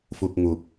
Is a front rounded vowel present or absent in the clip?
absent